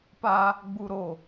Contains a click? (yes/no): no